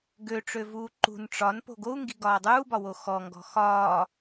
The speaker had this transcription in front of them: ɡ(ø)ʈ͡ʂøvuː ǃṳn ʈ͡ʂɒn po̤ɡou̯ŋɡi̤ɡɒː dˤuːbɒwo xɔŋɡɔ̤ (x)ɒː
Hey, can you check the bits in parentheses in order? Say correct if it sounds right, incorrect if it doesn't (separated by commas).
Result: correct, correct